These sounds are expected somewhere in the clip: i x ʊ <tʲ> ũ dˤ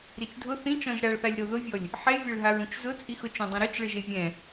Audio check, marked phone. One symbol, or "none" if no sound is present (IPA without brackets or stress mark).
t͡ʃ